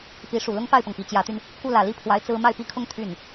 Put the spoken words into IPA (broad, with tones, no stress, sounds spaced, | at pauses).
p i˧˥ ʂ u˨˩ l ʊ˥ ŋ p a˥˩ ɪ̯ p ɤ˩ ŋ p i˨˩ t͡ɕ j ä˧˥ t̪ y˧ n | k u˥˩ l ä˨˩ l i˥ pʰ w a˧˥ ɪ̯ t͡s ɹ̩˥ m a˥˩ ɪ̯ p i˥ kʰ ʊ˥ ŋ t̪ʰ y˥˩ n